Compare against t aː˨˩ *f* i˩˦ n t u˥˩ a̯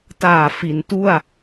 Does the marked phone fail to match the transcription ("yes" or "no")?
no